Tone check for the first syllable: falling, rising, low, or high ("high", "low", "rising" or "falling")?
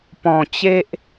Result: low